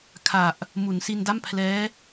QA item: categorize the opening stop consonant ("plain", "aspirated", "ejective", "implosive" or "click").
aspirated